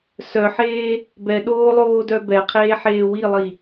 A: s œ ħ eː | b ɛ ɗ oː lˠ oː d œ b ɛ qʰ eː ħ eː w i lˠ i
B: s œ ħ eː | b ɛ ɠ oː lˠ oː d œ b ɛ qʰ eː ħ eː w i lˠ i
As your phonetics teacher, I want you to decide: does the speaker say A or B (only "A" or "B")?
A